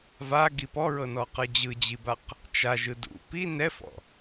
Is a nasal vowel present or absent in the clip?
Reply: absent